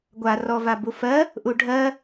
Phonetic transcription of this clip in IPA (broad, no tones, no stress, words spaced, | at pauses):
ɡʷa rɔvabufɜ | ʔuɖʱɜ